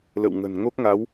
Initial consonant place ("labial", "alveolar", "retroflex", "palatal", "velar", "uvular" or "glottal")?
alveolar